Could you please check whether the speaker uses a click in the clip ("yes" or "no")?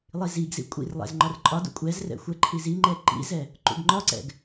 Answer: yes